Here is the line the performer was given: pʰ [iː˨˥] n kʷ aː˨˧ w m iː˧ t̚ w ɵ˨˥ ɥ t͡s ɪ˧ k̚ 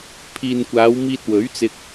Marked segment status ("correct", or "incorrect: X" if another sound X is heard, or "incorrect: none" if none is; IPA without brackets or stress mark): incorrect: iː˨